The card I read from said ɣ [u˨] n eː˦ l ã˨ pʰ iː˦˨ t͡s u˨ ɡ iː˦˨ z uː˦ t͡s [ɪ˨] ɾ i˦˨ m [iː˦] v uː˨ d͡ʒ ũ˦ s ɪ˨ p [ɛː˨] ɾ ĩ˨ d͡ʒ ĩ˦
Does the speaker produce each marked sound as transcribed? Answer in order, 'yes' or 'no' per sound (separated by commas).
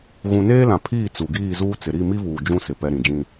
no, yes, no, no